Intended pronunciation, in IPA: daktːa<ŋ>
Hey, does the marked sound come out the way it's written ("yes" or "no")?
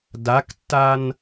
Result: no